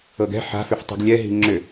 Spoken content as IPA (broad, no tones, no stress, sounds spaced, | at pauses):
ɤ ɡ ɛ̤ ħ a̤ f ʏ f tˤ i̤ ɡ lʲ ɛ ɦ i̤ ŋ͡ǁ ʏ